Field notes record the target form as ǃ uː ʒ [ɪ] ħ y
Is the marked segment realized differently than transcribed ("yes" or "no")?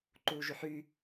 yes